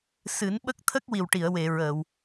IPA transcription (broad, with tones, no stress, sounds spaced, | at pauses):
s ɨ˨˩˦ n ɓ ə˦˥ k̚ t̪ʰ ə˦˥ k̚ w i˨˩ w ʈ i˨˩˨ ə̯ w e˨˩˨ ɹ əː˨˩˨ w